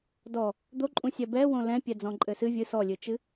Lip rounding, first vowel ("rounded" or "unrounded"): rounded